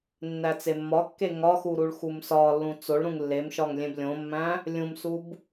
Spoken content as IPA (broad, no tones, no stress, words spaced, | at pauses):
nːæt͡semːɒkːe ŋɒxu ɾuɭxumsɒlːũ t͡soɭɾũŋ lːemʃɒŋ lʲẽblʲõmːæ̃ | lʲũmsub